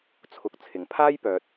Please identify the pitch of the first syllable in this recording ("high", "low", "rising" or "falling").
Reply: low